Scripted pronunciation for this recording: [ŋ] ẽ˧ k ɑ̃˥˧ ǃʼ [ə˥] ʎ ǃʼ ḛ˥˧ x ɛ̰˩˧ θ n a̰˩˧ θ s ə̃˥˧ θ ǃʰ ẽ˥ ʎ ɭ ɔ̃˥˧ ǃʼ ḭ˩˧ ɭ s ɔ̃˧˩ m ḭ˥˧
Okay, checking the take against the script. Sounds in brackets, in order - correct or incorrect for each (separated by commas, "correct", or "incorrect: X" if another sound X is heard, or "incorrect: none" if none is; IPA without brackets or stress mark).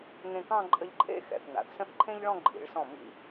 correct, incorrect: ə˧